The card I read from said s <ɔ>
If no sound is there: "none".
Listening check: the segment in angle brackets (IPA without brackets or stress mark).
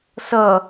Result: ʌ